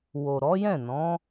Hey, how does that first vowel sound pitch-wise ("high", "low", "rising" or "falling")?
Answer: low